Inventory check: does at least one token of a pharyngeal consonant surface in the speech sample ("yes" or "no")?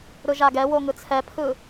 no